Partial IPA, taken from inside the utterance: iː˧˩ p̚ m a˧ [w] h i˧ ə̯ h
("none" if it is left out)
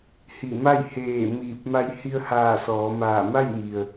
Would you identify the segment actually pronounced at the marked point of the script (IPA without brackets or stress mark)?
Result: j